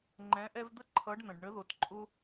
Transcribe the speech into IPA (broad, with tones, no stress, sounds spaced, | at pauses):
ŋ͡ǃ ɛ̃˨˦ ʔ ɛ˦ v d̪ ə˥˨ ǃʰ ʌ˨˦ ɖ n̪ ə̃˩ ɖ ɳ ə˨˦ ð o˩ t ǃʼ ʊ˦